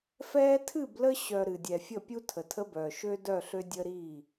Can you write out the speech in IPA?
f ɛː˦ tʰ ɨ˦˨ b l ə˦ ɕ œ˨ ɾ ɨ˨ dʲ ɛ˨ fʲ ə˦˨ pʲ u˦ tʰ ə˨ tʰ ə˦ b œː˨ ʃ ø˦ d œ˦˨ ɬ ø˦ dʲ ə˦ ɾ i˦˨

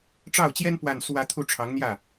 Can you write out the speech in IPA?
ʈ͡ʂ ɑ˥˩ ʊ̯ t͡ɕ j ɛ˥ n p w a˥˧ n s w ä˥˧ t̪ʰ u˥˩ ʈ͡ʂʰ ɑ˧˥ ŋ n̪ j ä˥˩

